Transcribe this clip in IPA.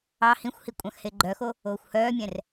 ɑ h ĩ xʷ h i kʷʼ ɑ̃ x h e ɡ͡ǃ œ x o | oː xʷ h œː mʲ ɛ̃ r

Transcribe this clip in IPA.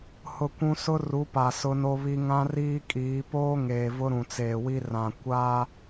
h ʊ˦ kʷ ũ˦ s ʊ˦ r u˨˦ p a˨ s ʊ˦ n o˦ β i˦ ŋ ã˦ r iː˦ kʼ iː˨˦ p oː˦ ŋ eː˨ v ʊ˦ ɾ ũ˨ t͡s eː˨ w i˦ r ã˨ kʷ a˦

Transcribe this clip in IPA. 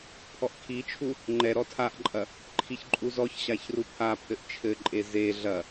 pʰ ɔ ʔ kʰ i t͡ʃʰ u | ŋ͡ǃ ɛ ɾ ɔ tʰ a ʔ ǃʼ ɐ | ǃʰ i ç ǃʼ u z ɔ ç ɕ a ç r u pʰ a pʰ ɘ ʔ t͡ʃʰ ɘ ǃʼ e z e ɮ ɐ

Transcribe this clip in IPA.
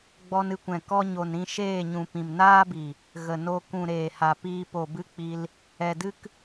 ɡ͡b ɔ˧ n ɨ˧ kʷ ɛ̃˨ k ɔ˧ ɲ o˨ n ɾ ĩ˧ ʃ eː˦˨ ɲ ũ˨ p ĩ˨ m n aː˦ b i˨ | ɣ ə˨ n o˧ k ũ˨ ɾ eː˨ h a˨ p iː˧ p o˨ b ɨ˦ k͡p i˧ l | ɛ˨ d ɨ˦ k

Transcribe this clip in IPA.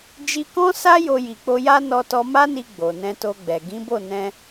d͡ʒ i˧ k ɔ̃˦ s a˦ j o˧ j i˨ k͡p o˧ j a˦ n ɔ˧ t ɔ˧ m a˦ n i˧ ɡ͡b o˨ n ɛ̃˧ t o˧ ɡ͡b ɛ˨ ɡ ĩ˨˦ b o˦˨ n ɛ̃˧

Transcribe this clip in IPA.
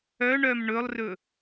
œ ɳ œ m ɳ ɵ lˠ r ɵ

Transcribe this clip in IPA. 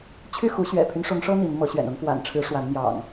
t͡ɕʰ y˥˨ x u˨˦ ɕ ɥ ɛ̰˨˩ pʰ y˦ n ʂ ʊ˨˦ ŋ ʂ ɤ˦ n̪ i˨˦ n m ɤ˨˦ ɕ ɥ ɛ̰˨˩ n ʊ˨˦ ŋ f w a̰˨˩ n ʈ͡ʂʰ ɻ̩˨˦ ʂ w a˨˦ n m j ɑ̰˨˩ ŋ

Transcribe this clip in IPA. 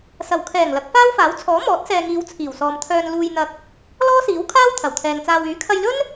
s ɐ˨˩ w kʰ ɛː˨˩ ŋ l ɐ˨˥ k̚ f aː˥ w f aː˨˥ w t͡sʰ ɔː˨˥ m ɔː˨˥ t̚ s ɛː˨ ŋ iː˨˧ w t͡sʰ iː˨˩ w s ɔː˨ m t̪ʰ œː˧ n l uː˧ j n̪ ɐ˧ k̚ | l ɔː˥ s iː˨˥ w kʰ aː˥ w t̪ʰ ɐ˨˩ w t̪ʰ ɛː˨ ŋ t͡s aː˧ w yː˨˥ kʰ ɐ˧ j l ɵ˥ n

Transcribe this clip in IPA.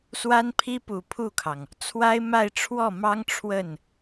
s w a˥ n pʰ i˥ p u˨˩ pʰ u˥˩ kʰ ɑ˩ ŋ | t͡sʰ w a˥ ɪ̯ m a˥˧ ɪ̯ ʈ͡ʂʰ w ɔ˥˩ m ɑ˥ ŋ ʈ͡ʂʰ w ə˥˩ n

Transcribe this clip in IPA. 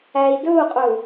æ i̯ d ɵ u̯ qʼ ɵ u̯

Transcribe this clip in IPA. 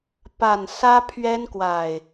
p a˨˩ n s ä˦ pʰ ɥ ɛ˦ n k w a˨˩ ɪ̯

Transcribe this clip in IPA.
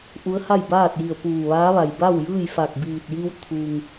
ʔ u˧˥ ə̯ h a˥˨ j b aː˥˨ t̚ j i˧˩ ə̯ p uː˧˩ ʋ aː˧˥ ʋ a˩ j b a˥˨ w j ɯː˥˨ j f a˧˩ k̚ b iː˧˩ t̚ j i˧ w t̪ʰ u˩ ŋ

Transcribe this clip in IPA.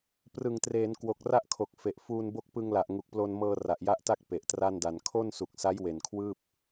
p r ɯ˨˩ ŋ t r eː˩˦ n k w o˨˩ k̚ r a˦˥ ʔ kʰ o˨˩ k̚ f e˨˩ ʔ f uː˧ n b o˦˥ k̚ p ɯ˧ ŋ l a˨˩ ʔ ŋ u˨˩ k̚ p l o˧ n m ɤː˧ r a˨˩ ʔ j a˦˥ ʔ t a˥˩ k̚ p e˨˩ ʔ t r a˥˩ n d a˧ n kʰ o˥˩ n s u˨˩ k̚ s a˦˥ j w e˨˩ n kʰ w ɯː˥˩ p̚

